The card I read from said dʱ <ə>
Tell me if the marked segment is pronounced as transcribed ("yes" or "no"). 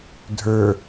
no